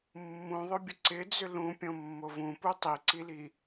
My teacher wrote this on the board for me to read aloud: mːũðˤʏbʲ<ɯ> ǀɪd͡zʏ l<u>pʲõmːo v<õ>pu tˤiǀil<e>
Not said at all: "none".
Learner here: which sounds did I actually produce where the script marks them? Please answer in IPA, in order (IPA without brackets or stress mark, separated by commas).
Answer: ə, ũ, ũ, i